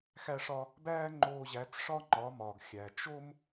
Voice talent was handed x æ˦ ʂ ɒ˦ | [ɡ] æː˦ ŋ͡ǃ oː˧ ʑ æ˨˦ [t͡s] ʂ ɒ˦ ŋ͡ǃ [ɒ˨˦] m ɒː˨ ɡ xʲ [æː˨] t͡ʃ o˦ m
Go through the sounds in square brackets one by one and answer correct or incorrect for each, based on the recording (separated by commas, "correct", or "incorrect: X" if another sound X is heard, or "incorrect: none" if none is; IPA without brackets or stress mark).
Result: incorrect: b, correct, correct, incorrect: æ˨